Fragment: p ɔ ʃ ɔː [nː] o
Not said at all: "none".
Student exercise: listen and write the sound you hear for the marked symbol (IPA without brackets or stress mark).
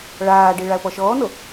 n